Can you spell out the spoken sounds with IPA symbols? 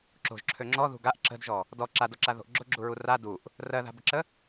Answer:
ǁ o̤ ʒ ǁʰ ø ŋ͡ǁ ɔ ð ṳ ɡ a ʔ ǁ ə̤ d ʒ ɔ | d ɔ ǁ a d o ǁ a ð o̤ ʔ ɡ͡ǁ ʊ ɡ͡ǁ u ɹ u r a d u ʔ | r ɜ ð a̤ b ə ǁ ə

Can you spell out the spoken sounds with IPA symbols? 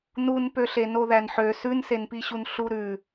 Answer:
n u n p ø ɬ e n o ð æ n ħ ø s ʉ n s e n p i ɕ u n ɬ u ɾ ʉ

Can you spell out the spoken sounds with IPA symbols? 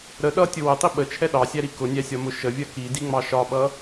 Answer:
ɾ ə ɗ ʌ tʲ ʊ w ə tˤ i ɓ ə t͡ʃʰ ɛ ɗ ɑ sʲ æ ɾ i k ʊ nʲ æ sʲ ɒ m ʊ ʃ ə vʲ ɜ k i d i ŋ͡m ɑ ʃ ɒ ɓ ʌ

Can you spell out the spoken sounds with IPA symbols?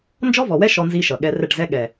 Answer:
n d͡ʒ ɔ˦ v ɔ˨ w ɛ˦ ʃ ɔ˦ n z i˦ ʃ ʌ˨ ɠ ɛ˦ r ɛ˦˨ ʈ z ɛ˦ ɠ ɛ˨

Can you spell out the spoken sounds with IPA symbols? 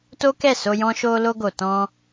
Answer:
t o˦ k ɛ˦˨ s o˧ j ɔ̃˧ ʃ o˧ l o˧ ɡ o˨ t ɔ̃˧

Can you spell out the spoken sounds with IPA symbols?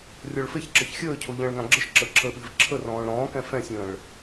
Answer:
rʲ ɔ ɭ f e ç ǁ ə ç xʲ əː cʰ o ʎ ə̃ː ɭ ŋ ã ɡ͡ǁ ə ʃ ǁ ə ǁʰ əː ɓ e̤ v ǁʰ ə r ɔ̃ː ɭ ɾ ɔ̃ː k ɛ̃ f ɛ̃ sʲ ə̃ː ɭ

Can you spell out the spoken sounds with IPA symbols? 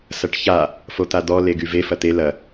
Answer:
s ɐ ʈ ç a | f o t̪ a d̪ ɔ l e ɡ y v e f ɐ t̪ e l ɐ

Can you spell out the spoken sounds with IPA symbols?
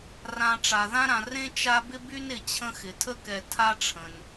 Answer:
r ã˨ ʈ͡ʂ a˩ ð ã˦ ɾ ã˨ r ẽ˥ t͡ʃ a˦ b ɪ˥ b y˥ n ɪ˨ t͡ɕʰ ə̃˦ x ɪ˩ tʰ ə˥ k ɛ˨ tʰ a˦ ʈ͡ʂʰ ə̃˩ n

